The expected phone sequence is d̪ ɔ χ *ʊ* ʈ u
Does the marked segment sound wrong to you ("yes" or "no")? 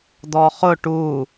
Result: no